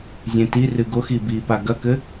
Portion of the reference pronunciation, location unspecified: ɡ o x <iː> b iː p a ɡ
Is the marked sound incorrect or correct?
incorrect